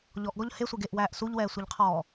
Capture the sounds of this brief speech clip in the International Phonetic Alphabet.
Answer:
ʎ ɔ ʔ ɡ ɔ ʎ h e sʷ e ɡ e ʔ w æː ʔ s u ʎ w ɛː sʷ i ʎ qʰ ɔː

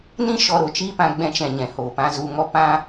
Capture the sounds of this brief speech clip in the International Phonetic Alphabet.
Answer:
n ĩ˦ ʃ ɔ˧ ɾ o˨ t͡ʃ iː˦ p ã˧ ɡ͡b ɛ̃˧ t͡ʃ ɛ̃˨ ɲ ɛ̃˨ h oː˨ p ã˧ z u˧ ŋ ɔ˦ p ã˦

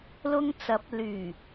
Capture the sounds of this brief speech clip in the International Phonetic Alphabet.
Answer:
l ʊ˧ ŋ t͡s ɐ˨˥ p̚ l yː˨˩

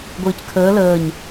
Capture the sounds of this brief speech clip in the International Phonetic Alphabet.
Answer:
ɡʷ ɨː c kʰ əː l əː ɲ

